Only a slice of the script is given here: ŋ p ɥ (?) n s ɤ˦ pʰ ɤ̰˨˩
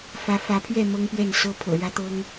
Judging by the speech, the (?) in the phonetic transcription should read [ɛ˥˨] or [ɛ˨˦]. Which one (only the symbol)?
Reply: ɛ˥˨